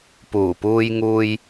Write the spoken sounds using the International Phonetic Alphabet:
puː˨˩puː˧jŋuː˧j

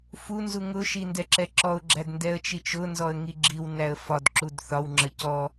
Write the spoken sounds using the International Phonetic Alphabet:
funzu ŋʊʃi ndɛǁɛǁɔʊ̯ɡ͡ǁæd ndɛə̯t͡ʃit͡ʃʊnzɔə̯ ŋiɡ͡ǁiwnæə̯ fɒd ǁudθɒwŋ͡ǁə cɔ

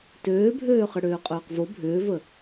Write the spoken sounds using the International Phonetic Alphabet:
tøːbʱøː χɘɽøːqʼøːqvo bʱʏːvə

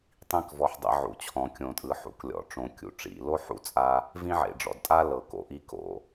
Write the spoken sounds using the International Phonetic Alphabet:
tˤĩ˥kvɔ˧ħ dˤḛ˧ʕṵ˩t͡ɕʰɔ̃˩ kʲõ˩tʼɯ˩ħṵ˩k lʲɔ̰˩ʈ͡ʂõ˩kʲṵ˩ ʈ͡ʂḭ˩lo˥ħṵ˧t͡sʼa˧ | vĩ˥ʕḛ˩ɖ͡ʐɔ̰˩dtʼa˥ lɤ˩ ko̰˩ʔi˧ ko̰˩

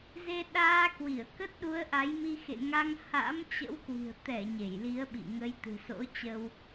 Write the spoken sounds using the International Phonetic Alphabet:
ze˧ɗaː˧kwi˧˩ə̯ kə˦˥t̚ɗu˨˦ə̯ʔa˨˦jmi˧ xḛ˧˨ŋa˧ŋ ha̰˧˥mt͡ɕə̰˧˥wkwi̤˨˩ə̯ t̪ɛ˧˩ ɲe˧˩jli˨˦ə̯ɓḭ˧˨ŋə˨˦j t̪ɨ̤˨˩so̰˧˥t͡ɕə˧w

